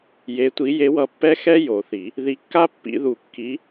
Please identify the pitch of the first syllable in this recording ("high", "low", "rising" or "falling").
rising